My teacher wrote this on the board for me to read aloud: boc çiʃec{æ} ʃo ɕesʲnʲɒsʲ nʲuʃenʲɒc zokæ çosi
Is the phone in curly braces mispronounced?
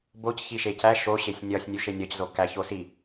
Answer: no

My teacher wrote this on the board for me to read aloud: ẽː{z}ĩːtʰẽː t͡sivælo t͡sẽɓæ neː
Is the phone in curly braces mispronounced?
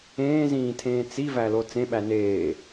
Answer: no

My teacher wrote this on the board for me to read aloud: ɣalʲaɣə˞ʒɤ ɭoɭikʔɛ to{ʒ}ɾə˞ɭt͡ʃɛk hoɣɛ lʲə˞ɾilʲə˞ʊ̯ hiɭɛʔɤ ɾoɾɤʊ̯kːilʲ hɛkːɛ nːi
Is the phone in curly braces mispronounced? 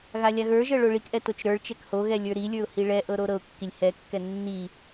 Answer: yes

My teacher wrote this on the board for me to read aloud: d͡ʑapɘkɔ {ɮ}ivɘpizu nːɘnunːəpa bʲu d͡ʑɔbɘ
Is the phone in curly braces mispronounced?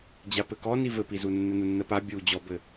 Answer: yes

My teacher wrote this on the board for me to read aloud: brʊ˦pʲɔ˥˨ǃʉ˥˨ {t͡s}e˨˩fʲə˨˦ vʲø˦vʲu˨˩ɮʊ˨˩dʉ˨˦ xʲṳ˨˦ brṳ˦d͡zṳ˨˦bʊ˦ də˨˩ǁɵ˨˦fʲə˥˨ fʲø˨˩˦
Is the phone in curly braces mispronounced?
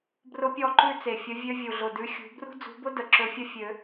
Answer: no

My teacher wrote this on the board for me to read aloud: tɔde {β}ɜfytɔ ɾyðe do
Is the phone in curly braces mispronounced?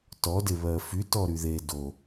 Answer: no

